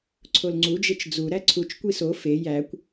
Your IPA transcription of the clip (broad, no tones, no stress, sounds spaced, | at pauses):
ǀʰ o l ŋ͡ǀ u d͡ʒ e t͡ʃ d͡z u ɾ æ ǀʰ u t͡ʃ kʷ i s o f e j æ kʷ